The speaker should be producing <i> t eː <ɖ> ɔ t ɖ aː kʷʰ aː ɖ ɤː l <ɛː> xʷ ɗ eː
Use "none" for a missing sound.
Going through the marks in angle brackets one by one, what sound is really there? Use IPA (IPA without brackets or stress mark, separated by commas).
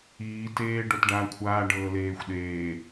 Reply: iː, ɖ, eː